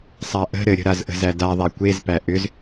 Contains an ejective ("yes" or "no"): no